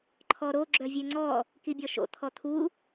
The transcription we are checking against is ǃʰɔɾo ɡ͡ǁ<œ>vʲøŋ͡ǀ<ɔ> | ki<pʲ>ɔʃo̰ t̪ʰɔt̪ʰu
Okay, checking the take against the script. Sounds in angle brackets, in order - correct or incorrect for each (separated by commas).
correct, correct, incorrect